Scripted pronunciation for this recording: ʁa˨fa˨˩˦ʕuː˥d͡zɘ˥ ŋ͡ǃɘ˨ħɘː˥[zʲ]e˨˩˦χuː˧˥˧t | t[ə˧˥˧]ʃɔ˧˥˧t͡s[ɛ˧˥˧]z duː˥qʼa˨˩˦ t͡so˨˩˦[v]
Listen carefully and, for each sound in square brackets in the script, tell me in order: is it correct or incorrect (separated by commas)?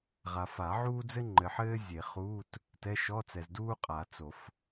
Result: correct, incorrect, incorrect, incorrect